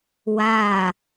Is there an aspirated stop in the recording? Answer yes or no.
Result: no